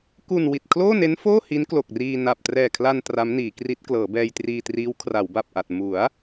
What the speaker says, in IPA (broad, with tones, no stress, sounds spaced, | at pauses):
k u˨˩ n w i˨˩ t̚ kʰ l oː˥˩ n e˦˥ n f oː˥˩ h i˦˥ n k l o˨˩ k̚ r iː˧ n a˨˩ p̚ t r ɛː˨˩ kʰ l a˧ n t r a˦˥ m n iː˩˦ k r i˦˥ t̚ k l ɤː˩˦ b ɛː˧ j t r iː˧ t r iː˦˥ w kʰ r a˩˦ w b a˨˩ p̚ ʔ a˨˩ t̚ m u˩˦ a̯